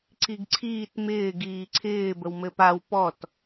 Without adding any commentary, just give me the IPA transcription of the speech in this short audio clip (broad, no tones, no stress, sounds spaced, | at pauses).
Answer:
ǀ i ɡ ǀʰ iː t m ɪː ɡ iː ǀʰ ɪː b ə w m ɘ p a w p ɔ t